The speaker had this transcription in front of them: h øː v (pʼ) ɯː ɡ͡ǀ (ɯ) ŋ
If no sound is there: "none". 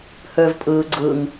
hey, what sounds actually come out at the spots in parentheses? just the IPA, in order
pʼ, ɯ

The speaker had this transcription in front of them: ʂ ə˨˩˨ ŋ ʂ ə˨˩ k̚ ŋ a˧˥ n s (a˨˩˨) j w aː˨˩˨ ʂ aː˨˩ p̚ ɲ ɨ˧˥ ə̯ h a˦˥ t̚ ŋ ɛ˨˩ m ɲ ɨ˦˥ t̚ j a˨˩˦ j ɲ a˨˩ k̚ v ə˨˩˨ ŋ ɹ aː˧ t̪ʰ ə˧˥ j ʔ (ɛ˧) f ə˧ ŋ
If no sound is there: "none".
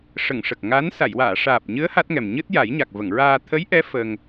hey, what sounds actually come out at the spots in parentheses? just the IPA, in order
a˨˩˨, ɛ˧˥

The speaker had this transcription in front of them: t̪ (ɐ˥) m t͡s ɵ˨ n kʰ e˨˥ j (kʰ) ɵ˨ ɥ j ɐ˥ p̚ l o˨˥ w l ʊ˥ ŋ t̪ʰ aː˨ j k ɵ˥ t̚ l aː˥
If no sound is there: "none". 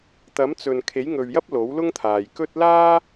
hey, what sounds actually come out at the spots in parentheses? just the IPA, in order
ɐ˨˥, ŋ

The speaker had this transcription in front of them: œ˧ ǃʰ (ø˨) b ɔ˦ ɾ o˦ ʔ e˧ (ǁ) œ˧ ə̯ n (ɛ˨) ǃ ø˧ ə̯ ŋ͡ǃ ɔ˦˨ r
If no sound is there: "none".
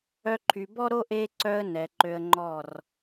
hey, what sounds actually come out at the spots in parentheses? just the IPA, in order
y˨, ǀ, ɛ˨

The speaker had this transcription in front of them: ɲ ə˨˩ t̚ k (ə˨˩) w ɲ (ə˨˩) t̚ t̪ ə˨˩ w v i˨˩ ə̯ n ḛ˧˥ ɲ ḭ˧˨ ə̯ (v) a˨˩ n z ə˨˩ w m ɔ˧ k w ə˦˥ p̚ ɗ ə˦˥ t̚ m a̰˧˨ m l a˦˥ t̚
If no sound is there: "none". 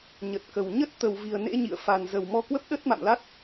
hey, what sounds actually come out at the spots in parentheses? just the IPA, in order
ə˨˩, ə˦˥, f

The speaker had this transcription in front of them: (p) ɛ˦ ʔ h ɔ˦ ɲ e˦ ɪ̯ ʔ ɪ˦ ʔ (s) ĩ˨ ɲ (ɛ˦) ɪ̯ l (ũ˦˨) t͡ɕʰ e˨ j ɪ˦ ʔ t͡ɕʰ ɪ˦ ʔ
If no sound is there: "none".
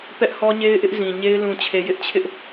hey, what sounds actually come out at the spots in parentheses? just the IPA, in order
p, z, e˦, ũ˨

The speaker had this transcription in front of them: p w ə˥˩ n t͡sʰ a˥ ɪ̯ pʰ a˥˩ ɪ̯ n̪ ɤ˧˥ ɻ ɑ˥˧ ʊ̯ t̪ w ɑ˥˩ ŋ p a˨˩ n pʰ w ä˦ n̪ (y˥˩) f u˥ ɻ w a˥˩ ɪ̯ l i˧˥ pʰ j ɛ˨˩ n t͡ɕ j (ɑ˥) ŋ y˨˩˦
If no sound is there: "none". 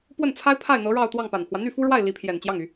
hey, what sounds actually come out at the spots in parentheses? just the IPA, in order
y˥˩, ɑ˥˩

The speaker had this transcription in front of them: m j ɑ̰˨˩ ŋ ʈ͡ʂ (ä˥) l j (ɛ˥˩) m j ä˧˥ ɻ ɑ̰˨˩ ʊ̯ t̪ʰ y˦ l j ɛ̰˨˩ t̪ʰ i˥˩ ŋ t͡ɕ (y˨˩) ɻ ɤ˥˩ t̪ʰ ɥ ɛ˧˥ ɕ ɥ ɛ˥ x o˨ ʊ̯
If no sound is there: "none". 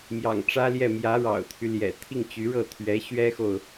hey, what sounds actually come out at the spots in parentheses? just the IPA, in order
ä˥, ɛ˥˩, y˧˥

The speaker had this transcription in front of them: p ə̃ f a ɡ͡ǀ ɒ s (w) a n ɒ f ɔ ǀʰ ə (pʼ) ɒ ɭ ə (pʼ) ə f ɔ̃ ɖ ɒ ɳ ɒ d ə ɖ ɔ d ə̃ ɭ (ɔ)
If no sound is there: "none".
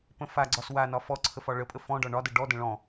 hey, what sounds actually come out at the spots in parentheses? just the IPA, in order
w, f, pʼ, ɔ̃

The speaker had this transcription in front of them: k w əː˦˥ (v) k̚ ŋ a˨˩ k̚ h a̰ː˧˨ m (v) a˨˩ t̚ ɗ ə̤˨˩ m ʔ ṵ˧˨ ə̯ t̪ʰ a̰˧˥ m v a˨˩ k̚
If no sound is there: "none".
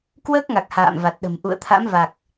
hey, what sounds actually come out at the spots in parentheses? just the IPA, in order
none, v

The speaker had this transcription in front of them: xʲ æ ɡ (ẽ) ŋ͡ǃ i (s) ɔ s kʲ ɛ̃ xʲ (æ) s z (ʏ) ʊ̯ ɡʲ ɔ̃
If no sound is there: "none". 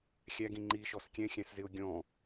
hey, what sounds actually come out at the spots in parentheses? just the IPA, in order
ĩ, ʃ, æ̃, ɪ

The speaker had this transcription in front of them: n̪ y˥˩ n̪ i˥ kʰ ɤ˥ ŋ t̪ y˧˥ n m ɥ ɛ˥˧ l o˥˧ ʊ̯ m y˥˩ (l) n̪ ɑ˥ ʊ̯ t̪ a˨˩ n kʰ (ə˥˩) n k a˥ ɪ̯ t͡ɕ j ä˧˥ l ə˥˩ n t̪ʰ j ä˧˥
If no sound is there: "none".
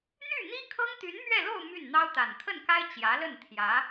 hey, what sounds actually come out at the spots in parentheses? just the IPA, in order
n, ə˥˩

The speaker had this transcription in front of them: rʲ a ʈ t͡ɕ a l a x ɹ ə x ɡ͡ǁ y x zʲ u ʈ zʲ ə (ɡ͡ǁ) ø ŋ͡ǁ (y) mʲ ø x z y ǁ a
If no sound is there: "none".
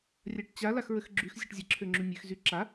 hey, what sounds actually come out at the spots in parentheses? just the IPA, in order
ǁʰ, y

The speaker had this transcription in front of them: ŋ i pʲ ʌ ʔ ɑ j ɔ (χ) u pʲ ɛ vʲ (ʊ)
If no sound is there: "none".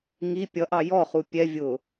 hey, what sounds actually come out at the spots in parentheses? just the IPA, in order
χ, ʊ

